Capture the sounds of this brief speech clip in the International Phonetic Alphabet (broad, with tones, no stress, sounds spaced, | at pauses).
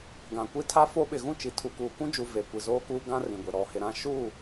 ɡ ã˨ kʷ i˦ tʰ a˦ f o˦ ɓ ɪ˨ ɣ ũ˦˨ t͡ʃ i˨ tʰ u˨ k uː˨ k ũ˦ d͡ʒ uː˨ v eː˨ kʷ i˨ z oː˦ k uː˦ ɡ ã˦ r ĩ˨ ɡʷ e˨ ɾ ɔ˨ h ɪ˨ ɾ ã˦ ʃ u˦˨